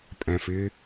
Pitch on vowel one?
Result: low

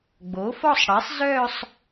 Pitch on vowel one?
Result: rising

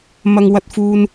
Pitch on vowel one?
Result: high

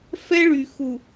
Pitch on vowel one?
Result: high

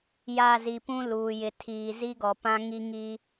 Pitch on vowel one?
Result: falling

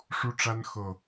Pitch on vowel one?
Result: high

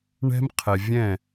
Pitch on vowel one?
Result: high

